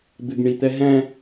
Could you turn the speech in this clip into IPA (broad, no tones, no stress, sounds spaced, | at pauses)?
d̪ ɘ ɡ ɳ i t̪ ɛ ɦ ɛ̃